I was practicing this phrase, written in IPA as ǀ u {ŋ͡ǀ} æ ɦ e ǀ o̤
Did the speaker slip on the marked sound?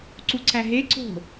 yes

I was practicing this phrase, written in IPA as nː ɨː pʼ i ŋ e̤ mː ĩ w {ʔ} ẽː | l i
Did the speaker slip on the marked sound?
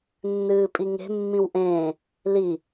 no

